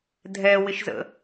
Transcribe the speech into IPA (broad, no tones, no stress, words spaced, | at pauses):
dʱɛwɪʃzə̰